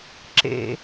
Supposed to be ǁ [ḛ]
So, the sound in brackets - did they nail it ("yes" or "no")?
yes